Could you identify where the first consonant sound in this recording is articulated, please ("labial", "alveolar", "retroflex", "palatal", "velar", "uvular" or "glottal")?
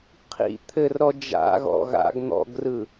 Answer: uvular